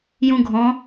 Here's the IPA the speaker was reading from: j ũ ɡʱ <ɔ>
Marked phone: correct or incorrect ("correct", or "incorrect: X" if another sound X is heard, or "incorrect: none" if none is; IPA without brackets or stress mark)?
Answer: incorrect: ɔ̃